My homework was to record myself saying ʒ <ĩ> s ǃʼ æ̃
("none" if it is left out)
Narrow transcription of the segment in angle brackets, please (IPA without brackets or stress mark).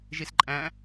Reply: i